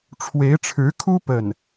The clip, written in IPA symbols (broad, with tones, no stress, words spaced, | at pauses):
ʈ͡ʂʰwe˧˥ɪ̯ʈ͡ʂʰɻ̩˧˥kʰu˥ pə˥˩n